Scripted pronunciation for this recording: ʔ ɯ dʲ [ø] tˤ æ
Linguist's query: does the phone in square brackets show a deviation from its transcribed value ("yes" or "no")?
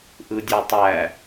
no